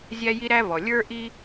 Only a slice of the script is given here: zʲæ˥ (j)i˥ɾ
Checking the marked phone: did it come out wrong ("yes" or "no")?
no